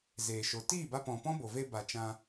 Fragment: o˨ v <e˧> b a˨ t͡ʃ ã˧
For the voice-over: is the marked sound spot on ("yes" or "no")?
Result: yes